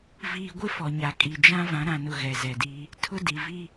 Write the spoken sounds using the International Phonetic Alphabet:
viː˨ɡʷɪ˦ fɔ˨ɲa˨kʼi˨ d͡ʒã˦ vã˨˦ɾã˨nʊ˨ ɣɛ˨zɛ˨di˦ | tʰʊ˦di˨vi˦

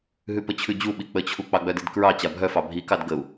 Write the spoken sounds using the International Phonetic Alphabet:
ɦʉpət͡ɕʰʉd͡ʑu ɓik͡pət͡ɕʰu k͡pɑɡ͡bœdidkɹɑ t͡ɕabʱœfɑ bʱikɑd ɡəu̯

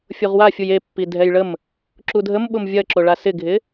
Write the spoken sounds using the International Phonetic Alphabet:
fʲoʁwafʲuj epːi dʱɛjɭəm | ǁudʱəm ɓʊmvʲɐ ǁoɭasɪɡʱɪ

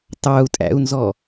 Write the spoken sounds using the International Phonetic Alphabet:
tɑu̯tʼæ̰u̯nzɔ

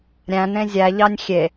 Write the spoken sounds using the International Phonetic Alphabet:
ɾʲæ̃nẽ zʲæʎɑnʲ xʲe

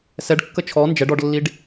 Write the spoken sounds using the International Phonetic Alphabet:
sɛɖkːə t͡ʃʰɔ nd͡ʒɛɖ ɔɖlːiɖ

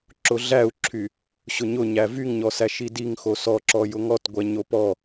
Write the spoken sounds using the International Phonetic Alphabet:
ǁʊɮæu̯ǁʰy | ɕʊɲʊ ɲævyŋɲɔsæʃ idiŋxo sɔǁɔ jʊŋɔtɡʷɛ ɲopɔ

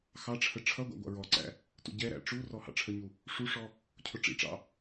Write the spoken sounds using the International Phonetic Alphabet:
xɑʈ͡ʂʰə ʈ͡ʂʰʌɡʷɑ̰ ɡʷɑ̰ɹɔǀæ̰ | tṵɟɛɾæ̰ ʈ͡ʂurɔ hɑ̰ʈ͡ʂʰəɲu | ʂuʂɔ | cʰʊʈ͡ʂḭʈ͡ʂɑ̰

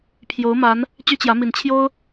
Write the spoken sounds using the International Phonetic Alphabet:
pʰjo˨˦ʊ̯ma˨˦n | t͡ɕy˦t͡ɕjä˨˦mi˨˩n t͡ɕʰjo˦ʊ̯

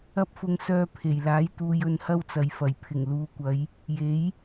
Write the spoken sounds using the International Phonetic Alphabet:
ɐ˥p̚fʊ˧ŋ sœː˧pʰe˨˩jlaː˨˥jt̪uː˨j ɵ˧nhɐ˥wt͡sɐ˨jfɐ˨˩j pʰɪ˨˩ŋluː˨˧kʷɐ˨˧j | je˨˥j

